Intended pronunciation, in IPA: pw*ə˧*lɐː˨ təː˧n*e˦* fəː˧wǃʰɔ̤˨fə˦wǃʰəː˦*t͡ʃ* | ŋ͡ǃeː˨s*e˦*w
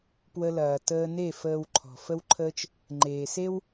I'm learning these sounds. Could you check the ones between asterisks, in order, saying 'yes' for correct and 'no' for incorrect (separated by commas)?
yes, no, yes, yes